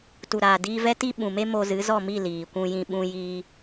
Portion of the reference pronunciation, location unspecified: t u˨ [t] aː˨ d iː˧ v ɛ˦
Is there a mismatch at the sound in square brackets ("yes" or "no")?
yes